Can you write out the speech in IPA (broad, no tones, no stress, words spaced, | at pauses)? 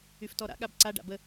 yftɔɾa̰ ɠabǀa ɖa̰bə